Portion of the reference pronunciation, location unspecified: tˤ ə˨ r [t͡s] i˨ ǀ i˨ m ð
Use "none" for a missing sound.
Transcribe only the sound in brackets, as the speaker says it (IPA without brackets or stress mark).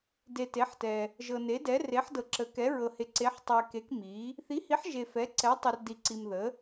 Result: d